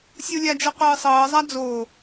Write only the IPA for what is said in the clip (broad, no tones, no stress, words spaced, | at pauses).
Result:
sʲulʲad͡ʒɤ qʷɯːsˤɤːzˤa d͡zoː